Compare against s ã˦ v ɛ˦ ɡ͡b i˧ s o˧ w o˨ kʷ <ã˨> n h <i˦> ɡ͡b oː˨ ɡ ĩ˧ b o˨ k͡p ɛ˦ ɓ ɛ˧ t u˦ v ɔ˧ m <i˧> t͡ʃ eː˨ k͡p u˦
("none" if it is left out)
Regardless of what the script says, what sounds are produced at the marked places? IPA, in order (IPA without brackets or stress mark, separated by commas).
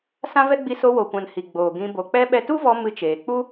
ã˨, i˨, ɨ˧